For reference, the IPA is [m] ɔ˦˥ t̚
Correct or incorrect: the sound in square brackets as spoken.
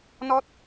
incorrect: n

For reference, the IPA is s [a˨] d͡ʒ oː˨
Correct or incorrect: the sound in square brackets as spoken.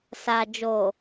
correct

